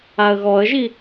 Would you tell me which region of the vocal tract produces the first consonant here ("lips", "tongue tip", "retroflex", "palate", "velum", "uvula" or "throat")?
velum